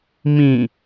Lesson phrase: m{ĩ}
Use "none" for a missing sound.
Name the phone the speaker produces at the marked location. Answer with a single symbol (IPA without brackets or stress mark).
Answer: ĩ